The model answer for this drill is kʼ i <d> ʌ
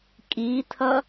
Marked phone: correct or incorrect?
incorrect